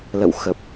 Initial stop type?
plain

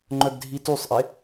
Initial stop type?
click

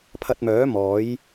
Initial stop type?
aspirated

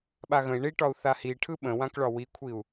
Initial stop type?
implosive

